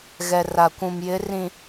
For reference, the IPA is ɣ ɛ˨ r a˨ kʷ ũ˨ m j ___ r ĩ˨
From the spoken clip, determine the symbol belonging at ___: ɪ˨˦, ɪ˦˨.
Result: ɪ˨˦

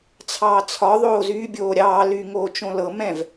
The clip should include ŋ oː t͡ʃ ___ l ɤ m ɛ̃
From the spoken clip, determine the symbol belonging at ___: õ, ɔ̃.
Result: õ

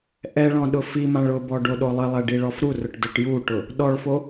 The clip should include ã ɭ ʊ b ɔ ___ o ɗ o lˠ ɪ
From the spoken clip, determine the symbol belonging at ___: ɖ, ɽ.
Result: ɖ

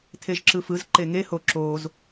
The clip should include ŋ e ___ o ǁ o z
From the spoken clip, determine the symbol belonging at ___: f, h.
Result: h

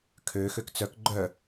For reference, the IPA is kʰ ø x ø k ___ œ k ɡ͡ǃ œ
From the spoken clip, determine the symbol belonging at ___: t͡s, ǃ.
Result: t͡s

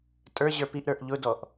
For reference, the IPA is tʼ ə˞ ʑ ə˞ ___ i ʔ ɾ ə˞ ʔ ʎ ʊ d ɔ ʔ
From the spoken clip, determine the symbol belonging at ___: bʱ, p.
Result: p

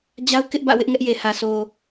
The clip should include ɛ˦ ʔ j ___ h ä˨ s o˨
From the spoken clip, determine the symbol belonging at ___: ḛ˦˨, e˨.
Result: e˨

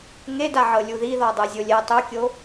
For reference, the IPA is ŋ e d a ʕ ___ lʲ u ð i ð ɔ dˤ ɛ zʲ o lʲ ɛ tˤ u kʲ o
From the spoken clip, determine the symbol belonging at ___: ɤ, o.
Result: ɤ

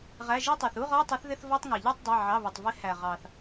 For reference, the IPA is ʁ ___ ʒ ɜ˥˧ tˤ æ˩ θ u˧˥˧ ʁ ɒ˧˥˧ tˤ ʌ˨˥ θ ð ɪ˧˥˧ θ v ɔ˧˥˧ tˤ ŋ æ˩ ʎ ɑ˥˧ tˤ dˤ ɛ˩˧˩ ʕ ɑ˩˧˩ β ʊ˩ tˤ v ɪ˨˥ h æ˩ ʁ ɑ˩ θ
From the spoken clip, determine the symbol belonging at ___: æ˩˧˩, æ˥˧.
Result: æ˩˧˩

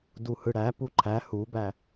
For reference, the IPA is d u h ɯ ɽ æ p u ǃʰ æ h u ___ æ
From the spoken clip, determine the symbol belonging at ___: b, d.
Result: b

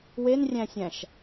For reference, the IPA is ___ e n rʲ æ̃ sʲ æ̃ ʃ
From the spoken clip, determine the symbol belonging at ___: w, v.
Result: w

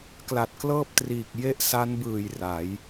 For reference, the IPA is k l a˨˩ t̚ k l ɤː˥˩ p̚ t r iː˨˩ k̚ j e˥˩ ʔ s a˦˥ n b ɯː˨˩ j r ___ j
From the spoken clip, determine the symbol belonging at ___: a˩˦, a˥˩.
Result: a˩˦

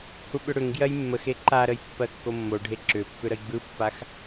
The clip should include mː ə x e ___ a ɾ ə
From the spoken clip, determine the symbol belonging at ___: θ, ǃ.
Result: ǃ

